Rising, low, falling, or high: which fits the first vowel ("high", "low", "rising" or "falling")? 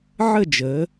falling